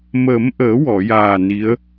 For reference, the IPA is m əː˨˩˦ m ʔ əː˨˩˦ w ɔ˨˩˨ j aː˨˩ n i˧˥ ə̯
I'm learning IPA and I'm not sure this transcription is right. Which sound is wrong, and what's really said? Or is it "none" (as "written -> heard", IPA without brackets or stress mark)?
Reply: none